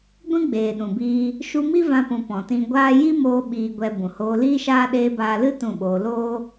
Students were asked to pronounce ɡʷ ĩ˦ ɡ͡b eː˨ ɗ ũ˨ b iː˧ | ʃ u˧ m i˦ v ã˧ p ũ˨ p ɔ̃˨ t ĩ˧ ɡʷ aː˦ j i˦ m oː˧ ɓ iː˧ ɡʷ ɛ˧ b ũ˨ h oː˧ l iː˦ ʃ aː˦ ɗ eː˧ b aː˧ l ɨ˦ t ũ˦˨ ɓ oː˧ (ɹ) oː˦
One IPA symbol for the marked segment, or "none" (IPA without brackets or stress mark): l